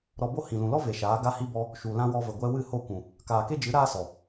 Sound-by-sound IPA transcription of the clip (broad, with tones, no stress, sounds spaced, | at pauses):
ɾ ɔ˧ b o˦ h ĩ˨ l ũ˨ l ɔ˦ v e˨ ʃ aː˨˦ ɡ a˧ h i˧ b ɔ˧ | ʃ u˨ l ã˦ w ɔ˧ v ə˨ ɡʷ ɛ˧ w ɨ˦˨ h o˦˨ kʷ ũ˨ | k aː˨ k e˦ d͡ʒ ɨ˨˦ ɾ aː˦ s ɔ˨